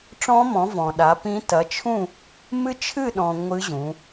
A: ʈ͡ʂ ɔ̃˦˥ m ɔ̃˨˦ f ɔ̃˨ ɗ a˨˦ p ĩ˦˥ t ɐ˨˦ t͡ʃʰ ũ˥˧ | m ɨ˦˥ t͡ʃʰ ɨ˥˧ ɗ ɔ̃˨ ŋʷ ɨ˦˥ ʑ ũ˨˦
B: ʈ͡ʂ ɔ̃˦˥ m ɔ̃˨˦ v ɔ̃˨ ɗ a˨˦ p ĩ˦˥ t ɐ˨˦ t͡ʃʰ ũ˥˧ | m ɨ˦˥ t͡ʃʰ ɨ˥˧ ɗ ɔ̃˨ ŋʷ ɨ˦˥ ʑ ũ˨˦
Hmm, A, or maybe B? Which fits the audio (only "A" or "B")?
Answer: B